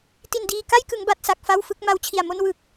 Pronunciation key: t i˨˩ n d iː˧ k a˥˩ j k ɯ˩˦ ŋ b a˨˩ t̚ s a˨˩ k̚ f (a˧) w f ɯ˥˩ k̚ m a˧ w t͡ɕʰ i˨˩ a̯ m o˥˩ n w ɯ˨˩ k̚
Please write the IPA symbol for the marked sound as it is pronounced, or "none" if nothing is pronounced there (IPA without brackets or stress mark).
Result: a˥˩